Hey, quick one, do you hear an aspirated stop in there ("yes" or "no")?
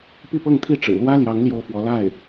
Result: yes